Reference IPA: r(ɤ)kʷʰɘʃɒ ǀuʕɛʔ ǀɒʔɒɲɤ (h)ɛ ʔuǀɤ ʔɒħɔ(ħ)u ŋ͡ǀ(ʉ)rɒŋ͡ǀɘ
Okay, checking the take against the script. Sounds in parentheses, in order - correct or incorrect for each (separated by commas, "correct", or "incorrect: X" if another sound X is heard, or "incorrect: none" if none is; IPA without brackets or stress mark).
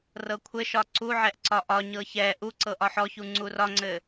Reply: correct, incorrect: ç, incorrect: ç, incorrect: u